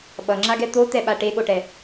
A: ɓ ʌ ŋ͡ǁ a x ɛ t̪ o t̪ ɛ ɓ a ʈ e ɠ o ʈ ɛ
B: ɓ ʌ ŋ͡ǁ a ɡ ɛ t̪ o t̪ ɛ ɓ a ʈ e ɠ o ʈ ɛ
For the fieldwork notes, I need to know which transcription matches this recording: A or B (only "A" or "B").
B